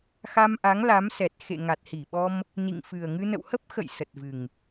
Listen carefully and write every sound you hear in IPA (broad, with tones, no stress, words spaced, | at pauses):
xa˧mʔa˨˦ŋ la˨˦m sɛ˨˩t̚xḛ˧˨ŋa˨˩t̚ hi˧˩ɓɔ˧m | nḭ˧˨ŋfɨ˨˩ə̯ŋɨ˧ nə̰˧˨whə˦˥p̚ xə̰˧˨j sə˨˩t̚vɨ˨˩ŋ